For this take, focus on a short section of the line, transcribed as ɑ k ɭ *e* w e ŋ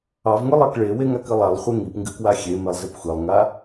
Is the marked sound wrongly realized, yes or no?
no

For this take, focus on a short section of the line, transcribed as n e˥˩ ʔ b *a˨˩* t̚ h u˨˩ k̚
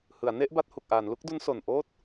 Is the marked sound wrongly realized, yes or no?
yes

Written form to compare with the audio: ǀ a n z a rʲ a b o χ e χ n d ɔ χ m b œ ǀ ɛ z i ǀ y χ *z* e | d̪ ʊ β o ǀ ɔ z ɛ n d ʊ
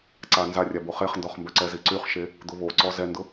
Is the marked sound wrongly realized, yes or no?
yes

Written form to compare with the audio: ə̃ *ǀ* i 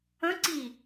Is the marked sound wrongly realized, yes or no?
no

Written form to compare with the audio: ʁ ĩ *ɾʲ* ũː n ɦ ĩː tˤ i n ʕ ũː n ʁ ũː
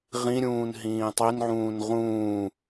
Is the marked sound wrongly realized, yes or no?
no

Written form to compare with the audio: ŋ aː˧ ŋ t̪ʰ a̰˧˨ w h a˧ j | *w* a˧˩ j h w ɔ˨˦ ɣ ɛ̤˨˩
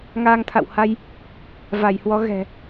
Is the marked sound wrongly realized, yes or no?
yes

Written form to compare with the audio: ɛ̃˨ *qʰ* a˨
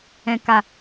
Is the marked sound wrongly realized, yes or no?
yes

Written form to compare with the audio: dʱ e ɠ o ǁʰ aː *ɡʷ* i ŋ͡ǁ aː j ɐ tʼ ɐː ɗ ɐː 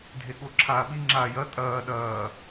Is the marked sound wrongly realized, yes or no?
yes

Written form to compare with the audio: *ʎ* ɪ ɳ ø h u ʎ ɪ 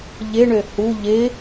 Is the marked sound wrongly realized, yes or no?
no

